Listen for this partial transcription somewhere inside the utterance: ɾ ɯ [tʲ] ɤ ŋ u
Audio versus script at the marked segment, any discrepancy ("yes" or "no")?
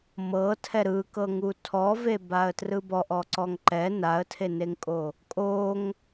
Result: yes